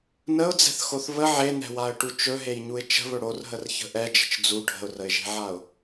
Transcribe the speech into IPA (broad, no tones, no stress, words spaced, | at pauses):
nəʊ̯d͡zɛ̤θxoθ βə ʕen̪ɛ̤waə̯ʈu t͡ʃɵɦejɲuɪ̯ t͡ʃə̤βɵ ɽorɦərçə̤ ʔɛd͡ʒə̤t͡ʃ d͡zu ɖʱə̤ʊ̯rəɪ̯ʒe̤ʕaʊ̯